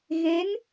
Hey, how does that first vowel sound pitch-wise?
rising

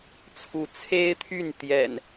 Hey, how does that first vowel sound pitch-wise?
rising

